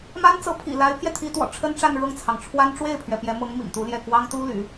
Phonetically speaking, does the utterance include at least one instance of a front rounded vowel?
yes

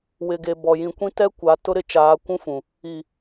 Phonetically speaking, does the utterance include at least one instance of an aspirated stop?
no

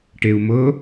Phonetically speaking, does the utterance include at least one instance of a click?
no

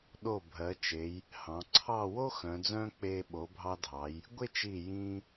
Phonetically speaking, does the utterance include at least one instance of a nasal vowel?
yes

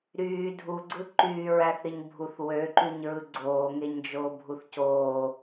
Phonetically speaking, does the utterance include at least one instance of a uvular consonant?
no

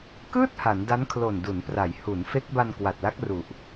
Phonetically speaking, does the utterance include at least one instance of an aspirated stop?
yes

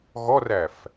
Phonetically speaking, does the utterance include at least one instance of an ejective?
no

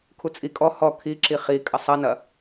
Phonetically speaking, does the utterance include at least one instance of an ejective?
yes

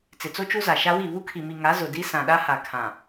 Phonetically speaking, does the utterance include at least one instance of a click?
no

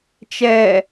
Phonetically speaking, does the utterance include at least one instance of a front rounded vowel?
no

